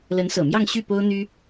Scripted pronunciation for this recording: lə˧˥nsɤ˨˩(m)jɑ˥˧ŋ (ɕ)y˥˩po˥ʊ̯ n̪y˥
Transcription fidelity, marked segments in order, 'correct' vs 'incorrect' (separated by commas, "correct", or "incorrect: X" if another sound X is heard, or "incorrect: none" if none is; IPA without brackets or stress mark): correct, correct